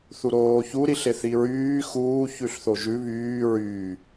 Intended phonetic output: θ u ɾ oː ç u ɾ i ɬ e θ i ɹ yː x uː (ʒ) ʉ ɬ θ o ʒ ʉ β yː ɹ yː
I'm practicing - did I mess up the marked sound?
yes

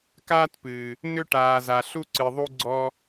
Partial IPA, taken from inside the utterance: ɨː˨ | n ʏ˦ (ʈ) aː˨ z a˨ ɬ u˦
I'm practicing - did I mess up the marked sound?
no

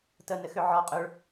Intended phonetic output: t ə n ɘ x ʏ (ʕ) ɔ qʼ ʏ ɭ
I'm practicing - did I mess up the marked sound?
no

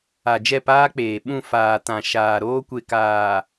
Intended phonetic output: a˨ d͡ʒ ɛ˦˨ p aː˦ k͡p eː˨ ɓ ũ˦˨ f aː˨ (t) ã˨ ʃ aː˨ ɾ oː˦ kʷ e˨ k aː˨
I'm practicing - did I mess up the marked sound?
no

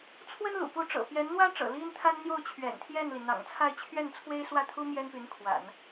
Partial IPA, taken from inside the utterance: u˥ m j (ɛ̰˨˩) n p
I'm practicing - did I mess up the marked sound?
yes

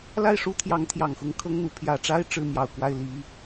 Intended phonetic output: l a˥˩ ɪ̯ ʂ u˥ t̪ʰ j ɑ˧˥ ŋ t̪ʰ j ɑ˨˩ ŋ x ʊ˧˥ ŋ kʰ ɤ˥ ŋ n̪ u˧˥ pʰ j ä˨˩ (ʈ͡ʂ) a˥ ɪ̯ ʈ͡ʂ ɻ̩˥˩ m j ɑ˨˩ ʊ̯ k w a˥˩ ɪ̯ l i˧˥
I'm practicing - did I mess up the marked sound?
no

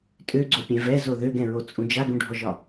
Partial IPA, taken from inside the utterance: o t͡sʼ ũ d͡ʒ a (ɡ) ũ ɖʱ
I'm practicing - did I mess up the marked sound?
no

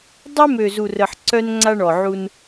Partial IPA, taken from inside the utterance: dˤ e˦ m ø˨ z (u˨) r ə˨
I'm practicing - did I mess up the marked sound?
no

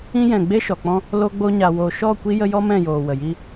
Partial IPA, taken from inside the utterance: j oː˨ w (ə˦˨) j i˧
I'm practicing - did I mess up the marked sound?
yes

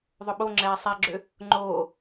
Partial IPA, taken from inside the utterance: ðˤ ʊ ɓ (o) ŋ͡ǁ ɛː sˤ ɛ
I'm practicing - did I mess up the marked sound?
no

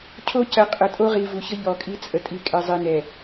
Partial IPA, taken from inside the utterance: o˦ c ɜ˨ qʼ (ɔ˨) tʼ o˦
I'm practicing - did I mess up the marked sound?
yes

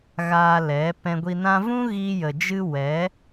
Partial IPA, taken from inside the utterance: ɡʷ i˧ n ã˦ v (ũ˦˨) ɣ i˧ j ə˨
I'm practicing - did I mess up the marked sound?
yes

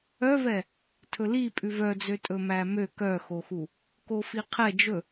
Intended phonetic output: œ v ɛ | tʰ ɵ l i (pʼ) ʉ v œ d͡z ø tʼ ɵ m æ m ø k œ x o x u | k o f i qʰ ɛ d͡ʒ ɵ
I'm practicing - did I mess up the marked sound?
no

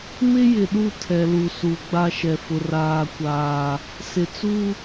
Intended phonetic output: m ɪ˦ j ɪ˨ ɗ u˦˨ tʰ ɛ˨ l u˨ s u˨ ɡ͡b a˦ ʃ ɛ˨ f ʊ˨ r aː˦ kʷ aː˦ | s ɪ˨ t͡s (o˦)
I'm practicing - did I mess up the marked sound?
yes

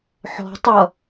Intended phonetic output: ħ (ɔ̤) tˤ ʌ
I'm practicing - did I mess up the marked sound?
no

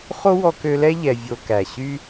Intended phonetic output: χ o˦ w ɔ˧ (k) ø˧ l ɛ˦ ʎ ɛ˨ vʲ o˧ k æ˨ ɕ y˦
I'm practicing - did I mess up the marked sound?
no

